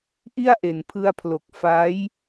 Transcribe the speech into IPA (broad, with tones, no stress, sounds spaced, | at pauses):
ʔ i˥˩ a̯ ʔ e˩˦ n pʰ ɯ˧ a̯ pʰ l o˨˩ k̚ f a˦˥ j